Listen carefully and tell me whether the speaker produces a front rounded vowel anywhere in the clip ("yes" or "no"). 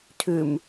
yes